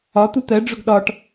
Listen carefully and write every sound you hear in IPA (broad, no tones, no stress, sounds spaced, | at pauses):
ɒ t̪ u t̪ ɜ ɖ͡ʐ ʊ ɡ ɗ ɒ ʈ